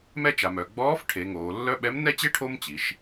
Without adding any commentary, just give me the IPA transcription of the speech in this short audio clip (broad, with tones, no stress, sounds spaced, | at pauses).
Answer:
m ɛ˥ t͡ʃ a˩˧ m œ˩˧ ɡ͡b ɔː˧˥ f ʈʰ e˩˧ ŋ oː˩˧ lː œ˥ ɓ ɛ˧˥ m n ɛ˥ t͡ɕ e˥ ʈʰ o˥ m t͡ɕ i˩˧ ʃ